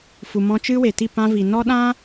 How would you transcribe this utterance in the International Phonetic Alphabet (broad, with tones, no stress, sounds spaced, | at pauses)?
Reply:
f u˨ m ɔ̃˧ t͡ʃ ɨ˦ w e˨ t i˦˨ p ã˧ v i˨ n ɔ˦ ɗ ã˦